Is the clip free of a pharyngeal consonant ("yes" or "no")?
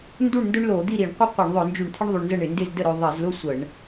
yes